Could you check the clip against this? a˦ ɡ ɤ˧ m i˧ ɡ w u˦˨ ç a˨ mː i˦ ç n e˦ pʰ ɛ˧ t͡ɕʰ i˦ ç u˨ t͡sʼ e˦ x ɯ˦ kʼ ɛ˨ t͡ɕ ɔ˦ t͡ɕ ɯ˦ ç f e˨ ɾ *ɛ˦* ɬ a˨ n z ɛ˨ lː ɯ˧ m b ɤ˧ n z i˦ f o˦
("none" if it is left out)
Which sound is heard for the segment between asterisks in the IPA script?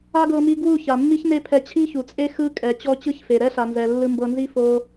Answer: ɛ˦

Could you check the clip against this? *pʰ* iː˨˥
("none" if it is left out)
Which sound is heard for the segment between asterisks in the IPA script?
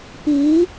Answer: p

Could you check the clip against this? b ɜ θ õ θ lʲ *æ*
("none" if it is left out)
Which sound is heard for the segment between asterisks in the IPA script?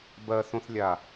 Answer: a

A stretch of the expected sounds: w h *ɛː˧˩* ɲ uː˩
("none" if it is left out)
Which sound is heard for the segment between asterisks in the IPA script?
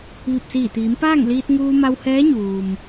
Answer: ɛː˧˥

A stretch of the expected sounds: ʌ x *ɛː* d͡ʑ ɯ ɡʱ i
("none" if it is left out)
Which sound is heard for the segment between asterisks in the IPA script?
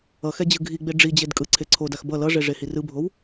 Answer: ɛ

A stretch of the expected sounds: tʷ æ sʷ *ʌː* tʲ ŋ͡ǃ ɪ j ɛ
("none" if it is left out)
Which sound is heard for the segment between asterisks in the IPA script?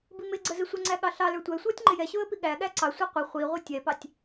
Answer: ʌː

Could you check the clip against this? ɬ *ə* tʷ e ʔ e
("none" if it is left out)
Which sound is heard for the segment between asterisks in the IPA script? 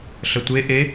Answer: ə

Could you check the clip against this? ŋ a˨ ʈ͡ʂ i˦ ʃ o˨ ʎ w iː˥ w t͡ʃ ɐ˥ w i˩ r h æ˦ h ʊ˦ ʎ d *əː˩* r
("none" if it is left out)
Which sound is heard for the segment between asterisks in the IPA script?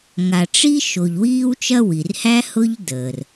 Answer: əː˩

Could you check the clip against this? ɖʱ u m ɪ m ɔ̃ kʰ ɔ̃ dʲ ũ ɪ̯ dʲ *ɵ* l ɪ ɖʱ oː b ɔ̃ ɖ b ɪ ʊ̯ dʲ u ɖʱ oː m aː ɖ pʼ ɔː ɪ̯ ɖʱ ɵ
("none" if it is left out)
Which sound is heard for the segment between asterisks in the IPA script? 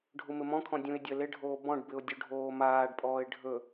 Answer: ə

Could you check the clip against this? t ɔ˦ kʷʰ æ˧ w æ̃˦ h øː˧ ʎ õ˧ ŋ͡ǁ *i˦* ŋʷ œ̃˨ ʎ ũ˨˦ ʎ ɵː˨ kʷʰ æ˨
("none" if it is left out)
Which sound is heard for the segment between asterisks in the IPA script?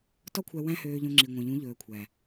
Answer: i˨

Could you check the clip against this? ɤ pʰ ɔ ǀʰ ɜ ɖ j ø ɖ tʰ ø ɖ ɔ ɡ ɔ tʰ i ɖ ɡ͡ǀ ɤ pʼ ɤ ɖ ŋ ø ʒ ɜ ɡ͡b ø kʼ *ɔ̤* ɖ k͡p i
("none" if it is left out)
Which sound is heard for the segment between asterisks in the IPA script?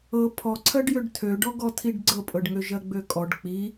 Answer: ɔ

